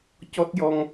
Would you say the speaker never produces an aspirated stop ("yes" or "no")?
yes